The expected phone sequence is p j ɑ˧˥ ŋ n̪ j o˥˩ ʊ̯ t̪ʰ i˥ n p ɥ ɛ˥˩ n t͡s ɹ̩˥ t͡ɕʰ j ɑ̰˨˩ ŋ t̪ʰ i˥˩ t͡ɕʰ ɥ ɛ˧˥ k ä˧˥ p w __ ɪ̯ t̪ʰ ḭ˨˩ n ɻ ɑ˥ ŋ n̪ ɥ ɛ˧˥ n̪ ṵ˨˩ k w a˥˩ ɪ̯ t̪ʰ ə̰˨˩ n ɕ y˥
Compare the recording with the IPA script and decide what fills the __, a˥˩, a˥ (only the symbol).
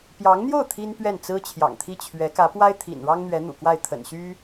a˥